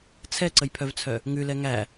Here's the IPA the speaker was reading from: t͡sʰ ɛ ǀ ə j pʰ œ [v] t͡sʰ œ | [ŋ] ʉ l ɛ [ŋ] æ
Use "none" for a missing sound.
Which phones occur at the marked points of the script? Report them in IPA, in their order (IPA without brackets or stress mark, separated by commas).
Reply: v, ŋ, ŋ